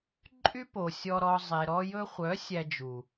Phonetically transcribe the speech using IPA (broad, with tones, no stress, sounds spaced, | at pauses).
ǃʼ y˦ p o˨ sʲ ɔ˧ ɾ ɔ˧ zˤ e˨ ɾ ɔ˧ j ɵ˧ χʷ œ˨˦ sʲ æ˧ d͡ʒ u˨